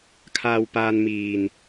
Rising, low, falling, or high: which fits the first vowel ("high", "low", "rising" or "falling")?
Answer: low